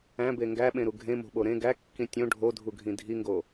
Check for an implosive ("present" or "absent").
present